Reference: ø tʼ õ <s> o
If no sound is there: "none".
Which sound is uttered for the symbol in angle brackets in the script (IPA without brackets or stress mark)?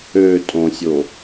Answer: sʲ